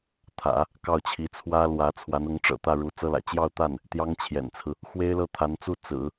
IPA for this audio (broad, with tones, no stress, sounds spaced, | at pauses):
t̪ʰ ä̰˨˩˦ | k ɑ˥˩ ʊ̯ t͡ɕʰ i˧˥ t͡sʰ w ä˥ l w ä˧˥ t͡sʰ w a˧˥ n ʊ˧˥ ŋ ʈ͡ʂ ɤ̰˨˩ t̪ ä˥˩ ɻ u˧˥ t͡s ɤ˥ l ä̰˨˩ t͡ɕ j ɑ˥˧ ʊ̯ t̪ a˥˩ n | t̪ j ɑ˥ ŋ t͡ɕʰ j ɛ̰˨˩ n t͡sʰ ɹ̩˦ | x w e˥ ɪ̯ l ɤ˥˩ t̪ʰ a˧˥ n t͡s u˥˩ t͡s ɹ̩˨˩˦